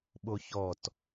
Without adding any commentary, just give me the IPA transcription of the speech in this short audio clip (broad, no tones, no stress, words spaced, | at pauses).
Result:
ɓoçɔt